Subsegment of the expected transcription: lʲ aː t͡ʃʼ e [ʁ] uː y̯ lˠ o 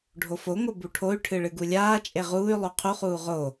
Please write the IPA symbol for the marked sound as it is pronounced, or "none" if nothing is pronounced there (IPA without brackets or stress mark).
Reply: ʁ